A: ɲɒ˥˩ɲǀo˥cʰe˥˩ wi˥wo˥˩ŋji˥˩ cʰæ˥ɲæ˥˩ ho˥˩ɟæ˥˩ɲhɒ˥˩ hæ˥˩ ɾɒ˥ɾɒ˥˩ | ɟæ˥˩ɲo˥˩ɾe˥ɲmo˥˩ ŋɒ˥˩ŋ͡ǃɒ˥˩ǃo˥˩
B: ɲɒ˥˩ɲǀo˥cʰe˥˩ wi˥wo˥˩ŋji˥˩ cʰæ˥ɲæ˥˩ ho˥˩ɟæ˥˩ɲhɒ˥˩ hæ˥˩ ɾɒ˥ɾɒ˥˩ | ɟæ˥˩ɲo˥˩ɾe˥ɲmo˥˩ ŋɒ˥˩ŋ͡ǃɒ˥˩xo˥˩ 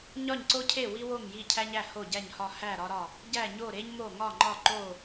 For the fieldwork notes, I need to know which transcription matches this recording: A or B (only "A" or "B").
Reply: A